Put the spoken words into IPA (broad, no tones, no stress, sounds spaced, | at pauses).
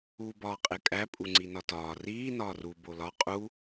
uː b ɒː qʼ e kʼ æ pʼ u ŋ͡ǀ i n ɒ t ɒː r iː n ɒː r u b o l ɒ qʼ u